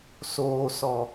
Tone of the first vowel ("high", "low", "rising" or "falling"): low